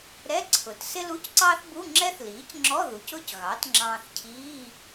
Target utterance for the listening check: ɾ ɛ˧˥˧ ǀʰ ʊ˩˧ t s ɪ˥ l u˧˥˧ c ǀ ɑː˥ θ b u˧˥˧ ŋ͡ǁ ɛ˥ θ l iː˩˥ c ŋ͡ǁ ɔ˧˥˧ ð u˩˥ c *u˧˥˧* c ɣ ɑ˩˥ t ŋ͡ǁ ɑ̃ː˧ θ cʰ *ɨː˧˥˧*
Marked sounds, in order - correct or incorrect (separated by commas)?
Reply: incorrect, incorrect